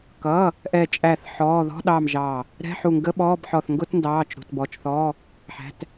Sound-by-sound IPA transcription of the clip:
kʌː˩˧˩ | ʔɛ˧˩t͡ʃʼæ˧˩θ ħɔː˩˧˩ðɔ̤˧˥˧ɗɑː˧˩m ʒɑː˧˩ | ɾɛ̤˧˥˧ħu˧˩ŋɡə˧˥˧ ɓɔː˧˥˧bħɔ˧˩θ ŋɡʊ˧˥˧tndɑː˩˧˩t͡ʃ ɾṳ˩˧˩tbɔ˩˧˩t͡ʃθɔː˧˥˧ | ħæ̤˩˧˩t

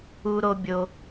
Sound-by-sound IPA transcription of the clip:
u˦ɾo˦bʲo˦

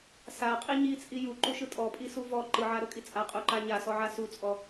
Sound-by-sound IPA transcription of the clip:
saqʼi ɲit͡sʼi juǃuʃɯ tʼɔpʼisu vɔ ǃɯʕaɾɤkʼi t͡sʼaqʼuǃa ɲasɔʕa sut͡sʼɔ

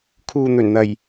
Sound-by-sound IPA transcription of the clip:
kʰuː˨n̪ɵ˨˩nn̪ɐ˨˩j

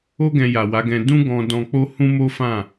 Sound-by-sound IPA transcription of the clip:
o˦ ɡɛ̃˧ja˨wa˨˦ɡɛ̃˧ dũ˦ɡɔ̃˧ dɔ̃˧k͡po˦ hũ˦ mo˦fã˦˨

